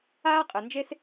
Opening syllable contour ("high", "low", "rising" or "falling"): high